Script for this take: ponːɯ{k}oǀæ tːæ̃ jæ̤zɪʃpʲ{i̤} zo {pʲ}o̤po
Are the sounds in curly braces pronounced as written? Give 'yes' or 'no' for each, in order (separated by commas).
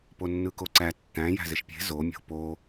yes, no, no